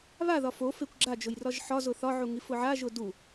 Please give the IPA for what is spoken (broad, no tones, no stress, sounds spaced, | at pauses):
β a ð ɒ f o f e kʷ ɡ͡ǁ a d͡ʒ ʊ j r ɒ ʒ ħ ɒ z ʊ θ ɒ ʕ u ŋ i f ʊ ʕ a ʒ ʊ d u